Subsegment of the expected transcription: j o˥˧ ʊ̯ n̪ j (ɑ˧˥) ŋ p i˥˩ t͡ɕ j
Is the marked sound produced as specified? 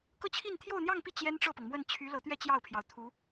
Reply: no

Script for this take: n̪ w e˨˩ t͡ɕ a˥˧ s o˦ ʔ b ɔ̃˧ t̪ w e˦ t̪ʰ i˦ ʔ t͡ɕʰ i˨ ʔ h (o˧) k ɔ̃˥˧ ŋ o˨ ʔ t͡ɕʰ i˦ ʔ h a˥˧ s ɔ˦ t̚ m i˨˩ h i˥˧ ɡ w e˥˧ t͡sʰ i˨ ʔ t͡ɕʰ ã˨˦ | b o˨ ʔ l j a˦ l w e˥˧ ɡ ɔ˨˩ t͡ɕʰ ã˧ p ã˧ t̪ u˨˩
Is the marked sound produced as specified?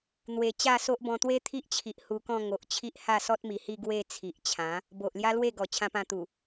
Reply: no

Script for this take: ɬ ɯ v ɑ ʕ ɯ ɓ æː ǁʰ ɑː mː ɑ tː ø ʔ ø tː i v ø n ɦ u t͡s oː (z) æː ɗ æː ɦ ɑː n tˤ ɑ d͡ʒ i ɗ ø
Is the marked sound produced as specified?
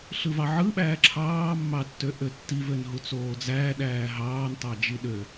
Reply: no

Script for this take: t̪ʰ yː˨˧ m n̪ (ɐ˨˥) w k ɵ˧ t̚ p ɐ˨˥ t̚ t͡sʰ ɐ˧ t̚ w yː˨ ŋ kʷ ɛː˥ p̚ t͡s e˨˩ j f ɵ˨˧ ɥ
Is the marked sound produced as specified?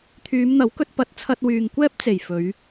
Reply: yes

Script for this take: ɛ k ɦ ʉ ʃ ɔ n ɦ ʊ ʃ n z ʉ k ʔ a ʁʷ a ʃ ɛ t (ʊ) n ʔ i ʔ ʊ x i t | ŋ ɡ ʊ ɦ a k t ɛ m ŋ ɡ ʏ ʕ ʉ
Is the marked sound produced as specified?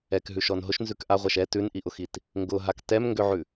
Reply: no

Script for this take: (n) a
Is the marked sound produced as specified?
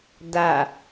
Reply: no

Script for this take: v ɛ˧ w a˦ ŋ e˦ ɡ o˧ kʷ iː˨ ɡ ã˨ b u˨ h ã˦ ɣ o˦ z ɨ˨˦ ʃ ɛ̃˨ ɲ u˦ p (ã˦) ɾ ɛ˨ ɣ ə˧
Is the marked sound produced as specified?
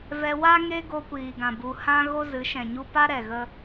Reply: no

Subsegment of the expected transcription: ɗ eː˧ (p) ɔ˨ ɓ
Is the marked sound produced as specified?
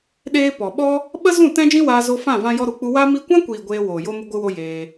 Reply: yes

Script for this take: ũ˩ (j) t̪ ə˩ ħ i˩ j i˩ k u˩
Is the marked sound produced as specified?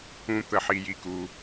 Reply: no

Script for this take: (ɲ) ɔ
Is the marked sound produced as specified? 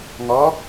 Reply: no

